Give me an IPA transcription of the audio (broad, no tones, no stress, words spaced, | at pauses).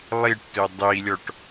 lˠiʈtɵ dˤilʲɔʈ